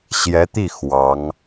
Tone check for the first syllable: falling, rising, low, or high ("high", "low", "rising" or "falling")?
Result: rising